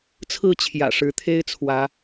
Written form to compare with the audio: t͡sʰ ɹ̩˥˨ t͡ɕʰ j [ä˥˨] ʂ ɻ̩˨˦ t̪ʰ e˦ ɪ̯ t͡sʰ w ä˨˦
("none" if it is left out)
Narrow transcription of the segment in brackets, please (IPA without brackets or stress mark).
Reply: ä̰˨˩